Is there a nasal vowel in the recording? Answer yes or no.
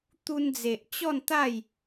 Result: no